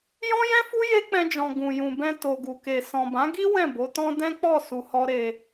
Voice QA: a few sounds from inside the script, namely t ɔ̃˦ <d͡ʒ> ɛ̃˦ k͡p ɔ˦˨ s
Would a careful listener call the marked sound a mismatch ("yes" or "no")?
yes